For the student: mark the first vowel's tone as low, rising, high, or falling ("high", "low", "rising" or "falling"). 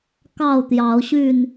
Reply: falling